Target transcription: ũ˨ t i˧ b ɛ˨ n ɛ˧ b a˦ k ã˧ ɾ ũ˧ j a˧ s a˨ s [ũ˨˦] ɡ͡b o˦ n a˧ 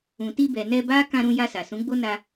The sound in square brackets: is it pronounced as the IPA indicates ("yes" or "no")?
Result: yes